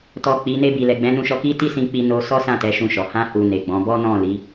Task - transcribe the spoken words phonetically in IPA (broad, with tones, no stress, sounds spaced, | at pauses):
t ɔ˨ k͡p i˨˦ n e˧ b i˨ l ɛ˨ ɡ͡b ɛ̃˨˦ n ũ˧ ʃ ɔ˧ k i˦ t i˦ s ĩ˧ k͡p i˧ n o˧ s ɔ˦ s ã˦˨ t ɛ˨˦ ʃ ũ˧ ʃ ɔ˨ h ã˧ h u˨ n e˨ ɡ͡b ɔ̃˨˦ b ɔ˦ n ɔ̃˦˨ l i˨˦